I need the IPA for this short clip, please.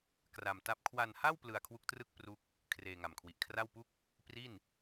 k r a˧ m t a˥˩ p̚ kʰ w a˧ n h a˥˩ w p l ɯ˧ a̯ kʰ w u˦˥ k̚ t r ɯ˥˩ k̚ p r u˥˩ k̚ | kʰ r eː˧ ŋ a˨˩ m kʰ w i˨˩ ʔ kʰ r a˥˩ w p u˥˩ k̚ | p r i˥˩ n

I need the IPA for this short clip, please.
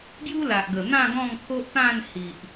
ɡ j u˦ l a˨ ʔ ɡ ə˨˩ n̪ ã˥˧ ɡ ɔ̃˥˧ ŋ t̪ʰ o˦ ʔ t̪ ã˥˧ n h i˨ ʔ

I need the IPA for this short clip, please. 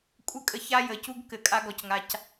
kʷʼ ɘ˦ kʼ ə˨ ç a˦ j ə˨ c u˦ ɡ k ɘ˨˦ kʼ a˦ ɡ ɔ˨ c ŋ a˨ c

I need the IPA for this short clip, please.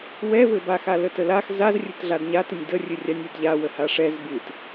w ɛ v ɘ b a x a l ə t ə l a x z a z rʲ ɘ t ɮ a d ɲ a t ɨ nʲ d ə rʲ ɨ rʲ a nʲ ɨ d ʎ a w ə h a ʂ ɛ z b ɨ t

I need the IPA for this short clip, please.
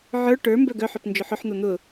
ʕ ə˞ ʈ ə˞ m b œ ɡ œ ħ œ p n d͡ʒ ʊ ħ ʊ ħ n̪ o n̪ ʊ

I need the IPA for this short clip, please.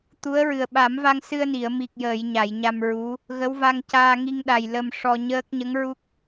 t̪ u˧˥ ə̯ ɹ ɨ˨˩ ə̯ ɓ a˨˩˦ m v a˧ ŋ s ɨ˧ ə̯ n i˨˩˨ ə̯ m i˨˩ k̚ j əː˨˩˨ j ɲ a˨˩˨ j ɲ a˧ m ɹ u˧˥ | ɣ ə˧˥ w v a˧ ŋ c aː˧ ŋ i˧ ŋ ɗ a˨˩ j l ə˧ m ʂ ɔ˧ ɲ əː˦˥ k̚ ɲ ə˧˥ ŋ ɹ u˦˥ k̚

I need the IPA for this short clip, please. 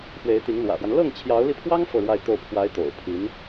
f w e˧˥ ɪ̯ t̪ i˧˥ ŋ l w ä̰˨˩ f w a˦ n l ɤ˥˩ ŋ t͡ɕʰ j ɑ˧˥ ʊ̯ l i˧ pʰ w ɑ˥ ŋ f ɤ˥˧ ɻ w a˥˧ ɪ̯ t̪ o˥˩ ʊ̯ pʰ w a˧˥ ɪ̯ t̪ o̰˨˩ ʊ̯ pʰ i˧˥ n

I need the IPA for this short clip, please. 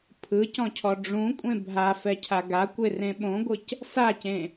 pʰ ɯ c ɔ̃ cʰ ɔ ɖ͡ʐ ũ kʷʼ ẽ bʱ a f ɛ cʰ a ɡ a kʷ e r ẽ ɓ õ ɡʷ ɯ c | s a c ẽ

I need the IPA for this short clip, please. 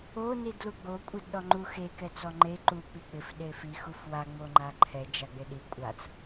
o n i d l u ɡ͡b o kʷʼ e d ɗ ɔ ŋ͡ǃ u x e k ɛ t͡s ɔ ŋ͡ǃ e ǃ u k͡p i k͡p ɪ f ɗ e f i x u f w a ŋ͡m o ŋ͡ǃ a ǃʰ ɛ d͡ʒ a ɡ͡b e ɗ i kʷʼ a t͡s

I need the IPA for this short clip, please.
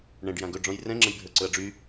ɳ ɛ̃ ɖ j ã ɡ ɵ ɖ͡ʐ ɔ̃ j r ɛ̃ ŋ͡ǁ ə̃ j bʱ ə˞ ǀ ɵ ɐ̯ ɖ͡ʐ y

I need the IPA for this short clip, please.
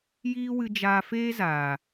j iː˦ w ɨ˧ d͡ʒ aː˧ f eː˦ z aː˨

